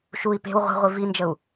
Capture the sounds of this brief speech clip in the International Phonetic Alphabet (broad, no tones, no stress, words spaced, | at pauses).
ʃui̯ pe̤w ʁʷe̤ʁʷi vind͡ʒəu̯